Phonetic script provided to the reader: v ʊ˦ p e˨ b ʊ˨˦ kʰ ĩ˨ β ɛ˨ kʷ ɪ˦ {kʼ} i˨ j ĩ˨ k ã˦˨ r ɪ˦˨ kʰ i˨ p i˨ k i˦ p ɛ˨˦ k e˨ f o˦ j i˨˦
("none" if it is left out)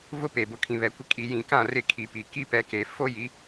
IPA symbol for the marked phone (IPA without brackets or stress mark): kʼ